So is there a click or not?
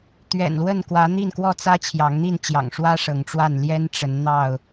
no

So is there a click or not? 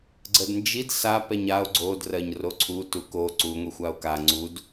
yes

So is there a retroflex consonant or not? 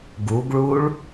yes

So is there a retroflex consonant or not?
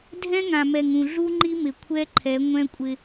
no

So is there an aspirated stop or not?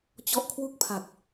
yes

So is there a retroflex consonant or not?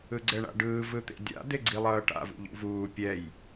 yes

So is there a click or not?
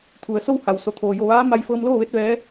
no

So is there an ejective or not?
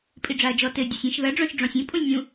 yes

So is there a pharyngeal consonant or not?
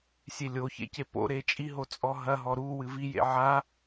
yes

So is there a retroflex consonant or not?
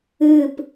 no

